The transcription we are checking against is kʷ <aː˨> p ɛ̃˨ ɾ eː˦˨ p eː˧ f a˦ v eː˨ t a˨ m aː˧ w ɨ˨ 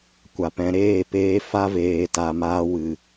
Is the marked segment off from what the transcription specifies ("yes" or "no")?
yes